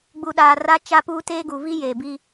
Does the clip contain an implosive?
yes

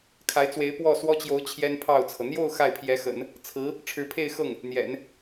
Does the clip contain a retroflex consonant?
yes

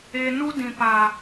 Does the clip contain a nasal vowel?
yes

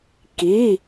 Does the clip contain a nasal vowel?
no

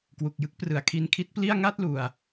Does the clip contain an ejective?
no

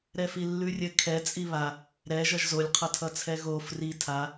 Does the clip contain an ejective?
yes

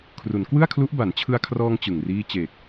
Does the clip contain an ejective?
no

